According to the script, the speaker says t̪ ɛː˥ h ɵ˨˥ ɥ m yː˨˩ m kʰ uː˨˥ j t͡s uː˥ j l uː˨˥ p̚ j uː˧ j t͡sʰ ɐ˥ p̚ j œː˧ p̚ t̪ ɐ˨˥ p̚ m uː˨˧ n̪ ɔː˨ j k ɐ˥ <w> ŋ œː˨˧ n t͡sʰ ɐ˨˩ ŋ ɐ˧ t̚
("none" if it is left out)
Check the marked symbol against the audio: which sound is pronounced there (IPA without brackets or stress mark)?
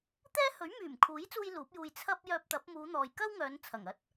w